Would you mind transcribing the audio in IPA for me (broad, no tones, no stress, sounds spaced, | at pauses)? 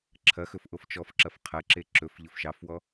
ǁʰ ɐ x ɵ f ʔ o f t͡ʃ ɔ f ǁ ɐ f qʰ ɐ ǁ e ǁ ɵ f ʎ ɵ f ʃ ɑ f w ɔ